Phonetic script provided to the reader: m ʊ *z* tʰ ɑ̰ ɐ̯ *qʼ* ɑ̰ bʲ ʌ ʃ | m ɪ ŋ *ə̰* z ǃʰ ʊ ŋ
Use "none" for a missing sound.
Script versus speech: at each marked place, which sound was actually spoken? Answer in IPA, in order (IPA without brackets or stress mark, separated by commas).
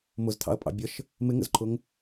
z, pʼ, ə̰